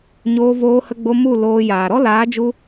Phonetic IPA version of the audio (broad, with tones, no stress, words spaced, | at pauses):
ɲoː˧voː˧hə˧ɡ͡bo˧ mu˦˨ loː˧ jaː˨ɾɔ˦ laː˨˦d͡ʒu˧